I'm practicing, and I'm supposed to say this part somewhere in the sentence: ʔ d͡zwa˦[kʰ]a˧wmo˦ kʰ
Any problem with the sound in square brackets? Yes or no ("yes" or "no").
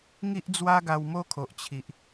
yes